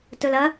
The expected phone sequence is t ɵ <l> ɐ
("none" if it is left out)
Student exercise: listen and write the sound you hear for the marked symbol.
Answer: l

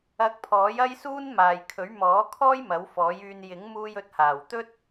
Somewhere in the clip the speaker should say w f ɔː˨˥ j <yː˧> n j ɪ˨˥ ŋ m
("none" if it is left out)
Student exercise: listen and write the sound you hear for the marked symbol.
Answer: yː˧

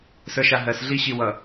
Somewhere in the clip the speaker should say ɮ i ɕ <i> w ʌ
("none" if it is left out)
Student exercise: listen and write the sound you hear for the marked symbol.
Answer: i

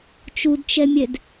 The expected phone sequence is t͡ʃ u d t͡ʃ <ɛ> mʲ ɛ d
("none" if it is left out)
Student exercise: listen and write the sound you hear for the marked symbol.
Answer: ɛ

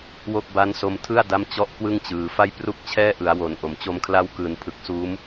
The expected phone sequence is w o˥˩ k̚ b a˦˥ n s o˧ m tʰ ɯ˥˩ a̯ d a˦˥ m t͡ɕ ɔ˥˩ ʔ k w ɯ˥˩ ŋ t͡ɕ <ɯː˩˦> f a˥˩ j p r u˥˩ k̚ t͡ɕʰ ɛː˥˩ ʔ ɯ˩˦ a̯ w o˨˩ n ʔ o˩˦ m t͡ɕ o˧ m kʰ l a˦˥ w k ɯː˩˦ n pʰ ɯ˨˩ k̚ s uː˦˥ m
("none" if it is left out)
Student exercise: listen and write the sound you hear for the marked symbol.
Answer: ɯː˩˦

